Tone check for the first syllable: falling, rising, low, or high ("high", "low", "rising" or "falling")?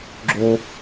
high